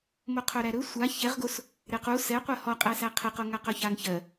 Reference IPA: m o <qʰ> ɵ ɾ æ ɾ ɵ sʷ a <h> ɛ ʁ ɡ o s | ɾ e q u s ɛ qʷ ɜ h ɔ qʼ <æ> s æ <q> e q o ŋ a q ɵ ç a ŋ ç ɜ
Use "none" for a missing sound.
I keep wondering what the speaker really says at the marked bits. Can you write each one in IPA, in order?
qʰ, ç, æ, qʰ

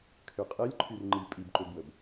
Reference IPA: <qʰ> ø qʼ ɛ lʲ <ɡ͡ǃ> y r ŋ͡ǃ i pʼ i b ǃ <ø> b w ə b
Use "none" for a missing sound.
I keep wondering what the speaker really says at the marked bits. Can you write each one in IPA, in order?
kʰ, ǃʰ, ø

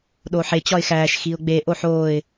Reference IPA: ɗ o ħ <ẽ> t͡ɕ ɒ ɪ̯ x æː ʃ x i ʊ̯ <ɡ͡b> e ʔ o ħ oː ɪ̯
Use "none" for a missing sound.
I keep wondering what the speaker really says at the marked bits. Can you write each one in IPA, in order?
e, ɡ͡b

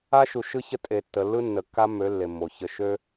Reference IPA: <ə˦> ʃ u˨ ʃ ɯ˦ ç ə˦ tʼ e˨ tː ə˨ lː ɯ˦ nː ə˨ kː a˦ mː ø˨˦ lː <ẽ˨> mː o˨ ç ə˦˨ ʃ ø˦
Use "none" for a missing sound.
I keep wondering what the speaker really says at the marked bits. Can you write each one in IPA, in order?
a˦, e˨

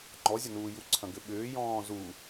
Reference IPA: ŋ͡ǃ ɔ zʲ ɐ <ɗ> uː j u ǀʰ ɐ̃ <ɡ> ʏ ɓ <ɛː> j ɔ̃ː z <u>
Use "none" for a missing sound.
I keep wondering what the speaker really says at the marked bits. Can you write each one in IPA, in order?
n, ɡ, ʏː, u

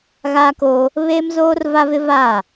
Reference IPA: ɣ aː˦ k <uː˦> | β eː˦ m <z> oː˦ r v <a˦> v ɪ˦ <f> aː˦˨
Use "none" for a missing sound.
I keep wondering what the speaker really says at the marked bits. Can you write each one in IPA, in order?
oː˦, z, a˦, v

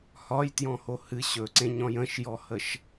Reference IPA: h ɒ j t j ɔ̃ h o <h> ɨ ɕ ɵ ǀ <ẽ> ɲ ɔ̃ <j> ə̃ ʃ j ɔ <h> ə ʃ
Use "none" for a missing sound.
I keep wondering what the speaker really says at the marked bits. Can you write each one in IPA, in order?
h, ẽ, j, h

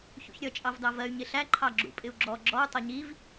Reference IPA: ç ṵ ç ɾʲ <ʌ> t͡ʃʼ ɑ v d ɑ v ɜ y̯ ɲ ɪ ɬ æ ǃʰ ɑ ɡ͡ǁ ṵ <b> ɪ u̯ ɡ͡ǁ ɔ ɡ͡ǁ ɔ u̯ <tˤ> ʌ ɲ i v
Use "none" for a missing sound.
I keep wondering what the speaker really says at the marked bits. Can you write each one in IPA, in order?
ʌ, pʼ, tˤ

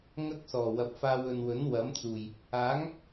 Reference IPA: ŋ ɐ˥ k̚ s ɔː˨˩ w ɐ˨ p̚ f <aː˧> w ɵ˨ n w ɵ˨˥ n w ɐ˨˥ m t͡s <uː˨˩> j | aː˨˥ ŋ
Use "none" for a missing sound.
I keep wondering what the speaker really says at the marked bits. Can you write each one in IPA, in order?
aː˧, uː˨˩

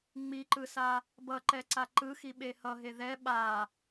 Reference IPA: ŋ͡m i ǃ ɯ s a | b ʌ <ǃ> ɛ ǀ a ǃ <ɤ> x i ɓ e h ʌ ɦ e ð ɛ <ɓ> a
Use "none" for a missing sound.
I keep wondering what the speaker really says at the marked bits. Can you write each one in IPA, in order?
ǃ, ɯ, ɓ

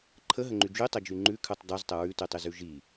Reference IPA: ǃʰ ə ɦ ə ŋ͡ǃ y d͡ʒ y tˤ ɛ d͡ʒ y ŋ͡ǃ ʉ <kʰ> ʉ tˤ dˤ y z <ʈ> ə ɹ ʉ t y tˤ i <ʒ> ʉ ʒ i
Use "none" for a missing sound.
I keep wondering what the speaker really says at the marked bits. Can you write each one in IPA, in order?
kʰ, tˤ, z

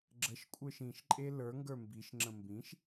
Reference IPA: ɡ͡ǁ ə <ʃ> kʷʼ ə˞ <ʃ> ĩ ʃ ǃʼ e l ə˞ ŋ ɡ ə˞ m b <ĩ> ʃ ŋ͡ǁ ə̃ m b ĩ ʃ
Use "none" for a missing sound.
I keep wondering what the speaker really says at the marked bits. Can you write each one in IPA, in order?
ʃ, ʃ, i

